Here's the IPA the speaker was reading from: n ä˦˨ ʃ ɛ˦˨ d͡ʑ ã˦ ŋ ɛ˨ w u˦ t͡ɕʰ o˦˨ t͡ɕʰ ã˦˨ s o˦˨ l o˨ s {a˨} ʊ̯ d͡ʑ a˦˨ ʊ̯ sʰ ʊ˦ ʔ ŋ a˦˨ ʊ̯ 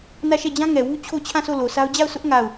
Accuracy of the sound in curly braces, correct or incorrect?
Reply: incorrect